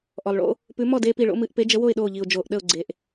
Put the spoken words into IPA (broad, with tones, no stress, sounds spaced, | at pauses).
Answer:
ʔ ɔ˩ lˠ ɭ o̰˦ | p ʉ˨˦ m ɔ˥˨ d eː˦ p i˧˩ ɭ o̰˦ m ɨ˧˩˧ ʔ p e˨˦ d͡ʒ ə˨˦ w o˥˨ ɪ̯ ɗ oː˧˩ ʎ i˩ ʊ̯ d͡ʒ oː˩ ʔ ɗ ə˧˩ ʊ̯ ɡ͡ǀ e˩ ʔ